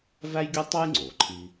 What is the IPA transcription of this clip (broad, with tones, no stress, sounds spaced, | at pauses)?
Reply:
v æ˥ j ɡʲ o˥ tˤ o˥ j ŋ͡ǀ o˩ ǃʰ i˥